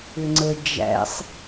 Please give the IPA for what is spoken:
ʏ ŋ͡ǀ ə d͡ʒ æ̰ sˤ

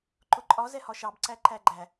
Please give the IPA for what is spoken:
ǃ ʊ ǃʼ ɒ z ɛ h ɒ ʃ ɑ b ǀ æ ǃ æ ɡ͡ǃ æ

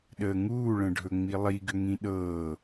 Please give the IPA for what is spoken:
ɗ əː ŋ uː ɭ ə̃ ɖʱ ɵ ŋ͡m i lˠ i ɡ ʏ ŋ ĩ ɗ ɤː

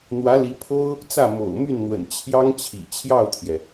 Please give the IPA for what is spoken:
n̪ w ä˧˥ l i˧˥ pʰ o˥ ʊ̯ | t͡s ä˥˩ m o̰˨˩ ʊ̯ m y˥˩ n n̪ w ə̰˨˩ n t͡ɕʰ j ɑ˥ ŋ t͡ɕʰ ḭ˨˩ t͡ɕʰ j ɑ˥˩ ʊ̯ t̪ʰ j ɛ˩

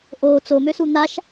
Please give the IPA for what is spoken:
ʔ o t͡s o m ø s u n̪ a ʃ

